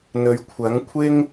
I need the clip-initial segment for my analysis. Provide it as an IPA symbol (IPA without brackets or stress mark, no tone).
n̪